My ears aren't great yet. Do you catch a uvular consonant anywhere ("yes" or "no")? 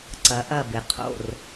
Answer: yes